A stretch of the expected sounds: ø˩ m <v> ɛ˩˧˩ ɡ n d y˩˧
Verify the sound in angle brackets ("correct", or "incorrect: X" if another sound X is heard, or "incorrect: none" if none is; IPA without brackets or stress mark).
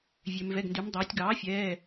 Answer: correct